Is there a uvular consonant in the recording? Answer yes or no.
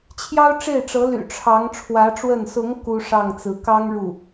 no